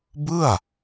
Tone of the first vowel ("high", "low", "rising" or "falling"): falling